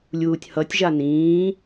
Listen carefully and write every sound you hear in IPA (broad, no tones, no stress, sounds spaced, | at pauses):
lʲ uː tʲ h ʌ tʲ ʒ a n ĩː